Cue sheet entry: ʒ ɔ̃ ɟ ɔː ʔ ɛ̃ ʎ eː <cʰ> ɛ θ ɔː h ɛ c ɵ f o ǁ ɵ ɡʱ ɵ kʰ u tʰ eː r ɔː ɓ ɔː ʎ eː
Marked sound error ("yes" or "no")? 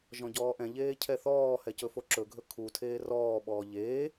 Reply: no